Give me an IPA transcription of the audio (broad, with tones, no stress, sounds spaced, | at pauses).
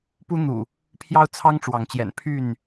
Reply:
p u˦ n̪ ṵ˨˩ | pʰ j ɑ˦ ʊ̯ t͡sʰ ɑ˦ ŋ ʈ͡ʂ w ɑ˨˦ ŋ t͡ɕ j ɛ̰˨˩ n pʰ y˥˨ n